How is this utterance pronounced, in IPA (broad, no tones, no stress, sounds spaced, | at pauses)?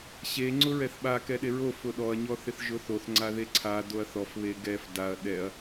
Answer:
ɕ e ŋ͡ǀ ʊ ɹ ɛ θ ɓ a k ɛ ɗ e ɹ o f ʊ ɗ ɔ ɐ̯ ɲ ɔ θ ɪ θ ʒ ʊ θ o θ ŋ͡ǀ a ð e ǀʰ a d o ɐ̯ θ ɔ f β e ɡ ɛ f d a ɐ̯ ɗ ɛ ɐ̯